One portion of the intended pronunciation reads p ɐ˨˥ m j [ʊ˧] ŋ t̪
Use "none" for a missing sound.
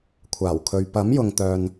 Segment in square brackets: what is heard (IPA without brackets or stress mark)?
ʊ˨